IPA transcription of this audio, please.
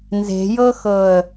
n z e̤ j ɤ x ɤ ə̯

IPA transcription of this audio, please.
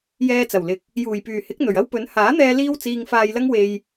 j ɛː˧ t͡s ɐ˨˩ w l ɪ˨˥ k̚ | j uː˨˩ j p yː˨˩ h ɪ˨˥ k̚ n̪ ɵ˨˩ ɥ ɐ˥ w p ɵ˨˥ n h aː˨˥ n̪ ɛː˧ l iː˥ w t͡s iː˧ ŋ f aː˧ j l ɐ˥ ŋ w e˧ j

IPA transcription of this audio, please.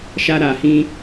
ʃ a˧ ɾ a˨ h ĩ˧

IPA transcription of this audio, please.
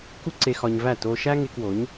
k u˦ ǀ e˧ x ɒ˧ ɲ v æ˦˨ t o˧ ʃ æ˦ ŋ e˧ k w o˨˦ ɲ

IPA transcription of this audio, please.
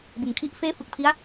b ɯ˩˦ ŋ kʰ i˦˥ ʔ f eː˥˩ f ɯ˨˩ k̚ tʰ i˦˥ a̯

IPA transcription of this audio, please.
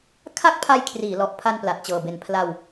kʰ a˥˩ k̚ pʰ a˧ j kʰ r iː˩˦ l ɔ˨˩ ʔ pʰ a˧ n p l a˨˩ t̚ t͡ɕ ɤː˨˩ b e˨˩ n pʰ l a˧ w

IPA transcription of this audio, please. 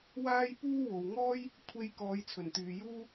w aː˥ j p uː˥ w o˨ w ŋ ɔː˥ j | kʷʰ e˧ j k ɔː˨˧ j t͡sʰ ɵ˨˩ n t̪ yː˨ j uː˥

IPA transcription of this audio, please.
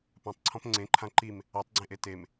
p ã tˤ ǀʰ ɔ̃ p ŋ͡ǀ ẽ ǃʰ ã ǃ i m | a tˤ ɡ͡ǀ ẽ ʔ e t e m

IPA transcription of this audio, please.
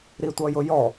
ɾ i tʷ ʌ j ʊ j ɔ

